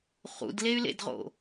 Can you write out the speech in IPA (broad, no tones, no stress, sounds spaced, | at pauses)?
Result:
χ ṵ d l e y̯ l ḛ d ʁ o̰